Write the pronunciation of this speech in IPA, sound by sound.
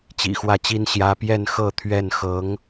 t͡ɕ ḭ˨˩ x w ä˥˩ t͡ɕ i˥ n ɕ j ä˥ p j ɛ˥˧ n x ɤ˥˧ t̪ʰ ɥ ɛ˥˩ n x ɤ˧˥ ŋ

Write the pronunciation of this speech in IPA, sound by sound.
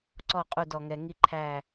ǀ ɔ˦˨ qʼ u˦˨ d ɔ˨ ŋ ɛ˨ ŋ i˦ ǃʰ æ˦˨

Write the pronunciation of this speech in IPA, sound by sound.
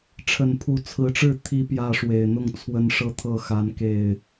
ʈ͡ʂʰ ə˨˩ n pʰ u˨˦ t͡sʰ ɹ̩˨˦ ʈ͡ʂ ɻ̩˥˨ t̪ʰ i˨˦ p j ä˥˨ ʂ w e˨˩ ɪ̯ n̪ ʊ˥˨ ŋ t͡sʰ w ə˦ n ʂ ɤ˥˨ t̪ʰ ɤ˥˨ x a˨˦ n k e˥˨ ɪ̯

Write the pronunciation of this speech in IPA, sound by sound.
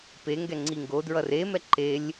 p e ŋ ɡ ɛ ŋ͡ǀ i ŋ ɡ o d ɹ ʌ r e m ɛ ǃ e lʲ

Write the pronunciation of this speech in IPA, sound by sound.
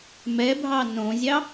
m ɛ bʱ ɑ n õ zʲ ɑ

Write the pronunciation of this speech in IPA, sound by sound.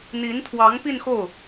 n̪ i˧˥ n t̪ʰ w ɑ˧˥ ŋ p i˥˧ n x o˥˩ ʊ̯

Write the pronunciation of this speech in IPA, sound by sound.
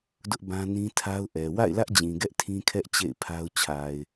d ʊ˦ ʔ b ã˦ n ĩ˦ tʰ a˦ ʊ̯ ʔ ɛ˨ w a̰˦˨ ɪ̯ l ä˦ ʔ d͡ʑ ĩ˨ ɡ ɛ˦ ʔ tʰ ĩ˦ kʰ ɛ˦ ʔ t͡ɕ ḛ˦˨ ɪ̯ pʰ a˦ ʊ̯ t͡ɕʰ a˨ ɪ̯

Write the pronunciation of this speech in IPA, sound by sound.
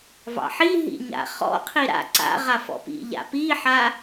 v ɑ̰ ħ i ɦ ḭ ɲ a̰ χ ɔ̰ qʰ i ɾ a̰ ǀ a̰ ʁ a f ɔ̰ p ḭ ʎ a̰ p i ħ a

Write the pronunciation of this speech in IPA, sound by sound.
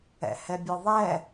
ɛ̰ h ɛ bʲ ɯ ðˤ ɛ

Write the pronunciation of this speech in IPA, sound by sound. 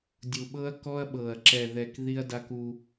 dʲ u˨ ɓ ɤ˦ ɐ̯ k ɔ˦ ɐ̯ ɓ ɤ˨ ɐ̯ ǁ ɛ˨ ð ɛ˨ k ð i˦ ɐ̯ d a˦ k u˦

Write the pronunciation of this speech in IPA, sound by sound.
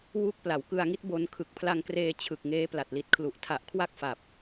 w u˦˥ k̚ p l a˩˦ w k ɯ˧ a̯ ŋ i˦˥ t̚ b o˧ n kʰ ɯ˨˩ k̚ pʰ l a˧ ŋ k r eː˧ t͡ɕʰ ɯ˨˩ k̚ ŋ eː˦˥ p l a˨˩ t̚ l i˨˩ t̚ kʰ l u˨˩ ʔ tʰ a˨˩ ʔ kʰ w a˥˩ k̚ f a˨˩ p̚

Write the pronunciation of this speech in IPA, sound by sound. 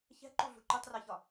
ç ɛ̤ ǃ u ɮ ṳ ǃ u tˤ r ɜ ç ɒ

